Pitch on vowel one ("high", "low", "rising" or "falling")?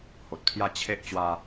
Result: low